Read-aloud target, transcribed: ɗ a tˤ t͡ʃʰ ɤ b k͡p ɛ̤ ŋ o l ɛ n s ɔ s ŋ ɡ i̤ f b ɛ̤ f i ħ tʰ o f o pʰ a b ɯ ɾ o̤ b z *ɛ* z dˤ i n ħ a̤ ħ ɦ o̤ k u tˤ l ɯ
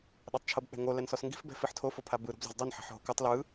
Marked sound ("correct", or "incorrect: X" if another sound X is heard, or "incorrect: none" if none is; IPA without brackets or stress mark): incorrect: ɛ̤